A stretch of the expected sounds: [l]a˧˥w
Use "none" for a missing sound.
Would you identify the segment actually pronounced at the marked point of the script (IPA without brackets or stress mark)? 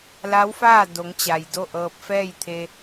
l